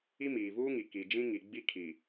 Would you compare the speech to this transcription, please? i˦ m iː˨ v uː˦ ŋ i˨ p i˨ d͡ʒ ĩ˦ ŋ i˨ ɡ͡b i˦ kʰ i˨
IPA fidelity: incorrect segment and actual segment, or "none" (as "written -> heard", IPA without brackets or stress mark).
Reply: p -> k